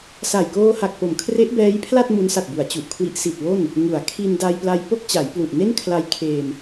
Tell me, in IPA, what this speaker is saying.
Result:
s a˨˩ j k oː˧ h a˨˩ k̚ p o˩˦ m kʰ r e˦˥ ʔ b ɛː˦˥ j pʰ l a˥˩ t̚ m u˦˥ n s a˨˩ t̚ b u˩˦ a̯ t͡ɕ u˨˩ ʔ kʰ w i˦˥ ʔ s i˨˩ t̚ w o˥˩ n | ŋ u˩˦ a̯ kʰ i˧ n d a˧ j p l a˧ j p o˥˩ k̚ t͡ɕ a˩˦ j p l u˨˩ ʔ n e˥˩ n kʰ l a˧ j kʰ eː˧ m

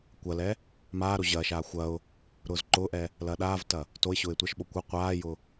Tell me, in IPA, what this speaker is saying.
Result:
kʷ ɐ l ɛ | m aː ɾ o ʑ ɐː ʃ aː xʷ ɐ ʊ̯ | ɾ ʊː z ǃ ʊː ʔ ɛ | l ɐː ɗ aː v t ɐ | t o ɪ̯ ɕ ʊː ɪ̯ tʷ ɐ ʃ ɓ o kʷ ʊ qʷ aː j ʊ

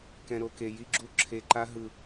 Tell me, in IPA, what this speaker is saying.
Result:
k ɛ̃˧ ɾ o˧ k e˧ j i˦ ɡ͡ǁ u˦ ǁʰ e˧ ǃ a˦ ɦ ɯ˧

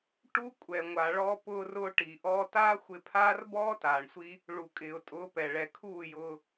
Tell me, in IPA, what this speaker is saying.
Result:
ʈ uː˧ kʷʼ ɛ˨ ŋʷ a˨ ɭ ɔ˧ p ʊː˧ r ʊː˧ ʈ i˨ ʔ ɔː˧ t aː˦ xʷ ɪ˧ pʰ aː˦ r b ɔː˦ t aː˨ ɳ sʷ i˦ | ɭ u˨ kʼ ɪː˨ ʊ̯ tʼ ʊː˨˦ p ɛ˨ ɭ ɛ˨ kʰ uː˦˨ j ʊː˧

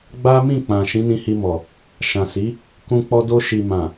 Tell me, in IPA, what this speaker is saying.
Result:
ɡ͡b a˦ m ĩ˦˨ k͡p ã˨ ʃ ĩ˨˦ n ĩ˧ h i˧ m ɔ˨ | ʃ ã˨ s i˨˦ | k ũ˧ k͡p ɔ˧ d o˧ ʃ i˨ m ã˨

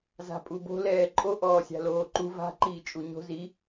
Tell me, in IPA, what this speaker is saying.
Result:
z a̤ pʼ u b o̤ l ɛː ǃʼ o ʔ ɔː sʲ a̤ l oː ǃ u v a̤ ǃ iː t͡ʃʼ u ɲ o̤ z i

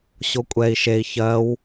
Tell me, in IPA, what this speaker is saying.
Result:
ɕ o kʷʼ ɛ i̯ ʃ e i̯ ç ɜ w

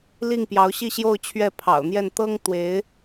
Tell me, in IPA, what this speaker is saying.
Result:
l i˥˩ ŋ p j ɑ˧˥ ʊ̯ ɕ i˥˧ ɕ j o˥˧ ʊ̯ t͡ɕʰ ɥ ɛ˥˩ pʰ ɑ̰˨˩ ʊ̯ n̪ j ɛ˥˩ n t̪ ɤ˥ ŋ t̪ w e˧˥ ɪ̯

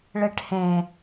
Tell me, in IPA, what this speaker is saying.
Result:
ɭ e ʈ h ẽ

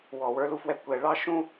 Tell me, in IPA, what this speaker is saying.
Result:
w ɔ˧˩˧ w ə˞˦ l u˦ f w ɛ˦ kʷ ɛ˧˩˧ ɭ ɑ˦ ʃ ũ˦

